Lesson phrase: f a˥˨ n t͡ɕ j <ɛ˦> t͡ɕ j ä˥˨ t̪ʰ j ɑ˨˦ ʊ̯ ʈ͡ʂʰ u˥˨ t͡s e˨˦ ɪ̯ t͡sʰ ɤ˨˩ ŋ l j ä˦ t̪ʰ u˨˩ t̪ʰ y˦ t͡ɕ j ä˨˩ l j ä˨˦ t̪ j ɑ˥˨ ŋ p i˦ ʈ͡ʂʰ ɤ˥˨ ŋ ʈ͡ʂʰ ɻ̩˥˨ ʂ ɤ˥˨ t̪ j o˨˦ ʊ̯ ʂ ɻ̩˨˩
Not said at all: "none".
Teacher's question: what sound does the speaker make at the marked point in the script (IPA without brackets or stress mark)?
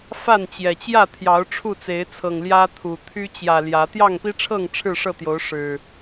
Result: ɛ˨˩